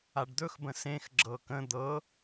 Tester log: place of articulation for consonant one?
retroflex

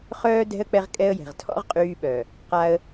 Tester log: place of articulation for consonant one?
uvular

